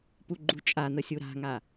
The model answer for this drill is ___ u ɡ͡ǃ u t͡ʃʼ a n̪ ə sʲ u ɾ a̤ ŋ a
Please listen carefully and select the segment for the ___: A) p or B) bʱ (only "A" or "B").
A